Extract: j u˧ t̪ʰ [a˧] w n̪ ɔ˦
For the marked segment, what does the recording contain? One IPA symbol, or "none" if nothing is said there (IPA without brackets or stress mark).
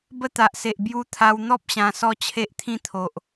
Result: a˧